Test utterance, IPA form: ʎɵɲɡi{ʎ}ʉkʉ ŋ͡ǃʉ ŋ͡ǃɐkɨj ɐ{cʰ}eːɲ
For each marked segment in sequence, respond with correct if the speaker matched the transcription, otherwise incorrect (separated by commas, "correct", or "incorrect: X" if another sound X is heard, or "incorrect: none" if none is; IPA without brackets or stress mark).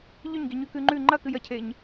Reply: incorrect: ɲ, correct